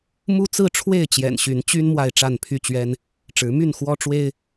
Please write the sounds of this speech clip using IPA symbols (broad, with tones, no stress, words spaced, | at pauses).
mu˦t͡sɹ̩˥˨ ʈ͡ʂʰwe˥˨ɪ̯t͡ɕjɛ̰˨˩nɕy˨˦n t͡ɕy˦n mwa˥˨ɪ̯ ʈ͡ʂa˥˨npʰy˥˨t͡ɕɥɛ˦n | ʈ͡ʂɻ̩˨˦my˥˨nxwɔ˦ ʈ͡ʂwe˦ɪ̯